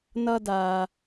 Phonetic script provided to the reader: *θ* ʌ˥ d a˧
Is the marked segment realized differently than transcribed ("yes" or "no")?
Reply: yes